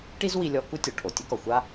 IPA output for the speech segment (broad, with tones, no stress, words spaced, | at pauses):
ʈi˥zwi˧lʲɔ˧ ku˥tʲɔ˩ ʈʰo˩tʲɘ˥kɔ˩ xʷa˥